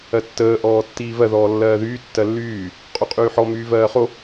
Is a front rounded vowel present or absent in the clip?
present